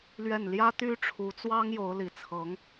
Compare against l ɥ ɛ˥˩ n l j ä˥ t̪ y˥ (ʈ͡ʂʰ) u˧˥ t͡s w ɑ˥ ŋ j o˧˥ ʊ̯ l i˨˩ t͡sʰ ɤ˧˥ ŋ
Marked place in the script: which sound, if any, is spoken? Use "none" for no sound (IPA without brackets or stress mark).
ʈ͡ʂʰ